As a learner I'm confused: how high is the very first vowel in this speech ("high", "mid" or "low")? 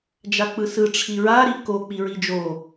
low